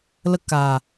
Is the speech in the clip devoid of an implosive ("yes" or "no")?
yes